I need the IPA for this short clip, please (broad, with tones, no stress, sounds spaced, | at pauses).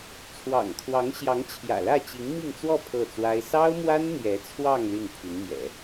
t͡sʰ w ɑ̰˨˩ ŋ kʰ w ɑ˧˥ ŋ ɕ j ɑ˧˥ ŋ t͡ɕʰ j ä̰˨˩ l ä˥˩ t͡ɕ i˧˥ ŋ m i˥˧ ŋ t͡s w ɔ˥˧ pʰ ɤ˥˩ t͡s w a˥ ɪ̯ s ɑ˥ ʊ̯ m w a˥ n n̪ j ɛ˧˥ t͡sʰ w ɑ˥˧ ŋ l y˥˩ n pʰ y˧˥ n m j ɛ̰˨˩˦